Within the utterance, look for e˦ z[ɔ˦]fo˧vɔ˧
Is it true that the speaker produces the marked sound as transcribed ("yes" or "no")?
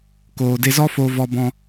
yes